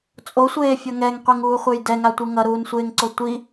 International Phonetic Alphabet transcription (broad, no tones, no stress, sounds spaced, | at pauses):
t͡sʼ o sʷ eː fʲ ʌ ŋ ɛ ŋ qʷ i ŋ uː χʷ e j d ɛ ŋ a tʷ ɯ ŋ ʌ ɾ uː n sʷ eː ŋ ǀ o tʷ i